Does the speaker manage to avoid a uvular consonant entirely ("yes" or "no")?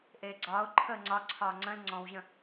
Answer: yes